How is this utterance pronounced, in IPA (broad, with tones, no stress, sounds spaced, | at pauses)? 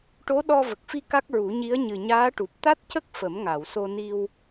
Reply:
ʈ o˧˥ ɗ ɔ˧ v ə˨˩ k̚ f i˧ k a˦˥ k̚ ɹ u˨˩˦ ɲ i˧˥ ə̯ ɲ ɨ˨˩ ɲ aː˧˥ ʈ u˨˩ p̚ t̪ a˦˥ t̚ c ə˦˥ k̚ f ə˨˩˦ m ŋ a˨˩˨ w s o˧ n i˧ w